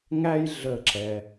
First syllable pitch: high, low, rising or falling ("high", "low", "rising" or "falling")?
high